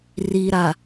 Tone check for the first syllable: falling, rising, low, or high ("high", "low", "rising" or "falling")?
low